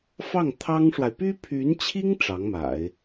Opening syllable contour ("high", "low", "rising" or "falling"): falling